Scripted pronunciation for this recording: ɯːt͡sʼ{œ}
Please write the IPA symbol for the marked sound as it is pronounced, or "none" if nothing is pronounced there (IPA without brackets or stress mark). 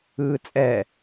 ɛ